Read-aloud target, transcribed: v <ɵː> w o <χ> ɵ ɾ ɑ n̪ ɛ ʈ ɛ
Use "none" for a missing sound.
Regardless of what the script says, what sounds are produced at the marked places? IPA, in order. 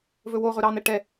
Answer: ɵ, ʁ

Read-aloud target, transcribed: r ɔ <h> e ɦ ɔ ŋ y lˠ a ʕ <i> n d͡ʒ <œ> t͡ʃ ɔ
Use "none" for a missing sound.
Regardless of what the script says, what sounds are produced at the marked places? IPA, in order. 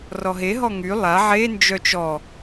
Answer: ɦ, e, œ

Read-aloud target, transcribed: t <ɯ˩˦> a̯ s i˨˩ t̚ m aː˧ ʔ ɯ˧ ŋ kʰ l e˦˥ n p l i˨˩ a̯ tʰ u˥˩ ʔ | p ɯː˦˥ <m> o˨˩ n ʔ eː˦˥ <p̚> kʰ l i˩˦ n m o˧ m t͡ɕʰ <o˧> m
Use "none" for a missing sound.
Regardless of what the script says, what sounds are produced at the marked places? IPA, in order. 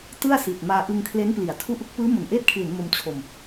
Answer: ɯ˥˩, m, t̚, o˧

